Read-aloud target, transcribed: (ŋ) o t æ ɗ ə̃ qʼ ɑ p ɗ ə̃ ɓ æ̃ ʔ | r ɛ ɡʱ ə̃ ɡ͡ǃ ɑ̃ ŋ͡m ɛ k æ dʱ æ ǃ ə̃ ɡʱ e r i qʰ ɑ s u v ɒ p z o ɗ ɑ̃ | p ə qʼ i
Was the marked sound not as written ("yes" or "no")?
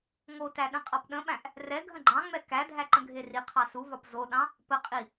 no